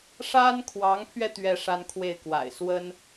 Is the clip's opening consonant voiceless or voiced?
voiceless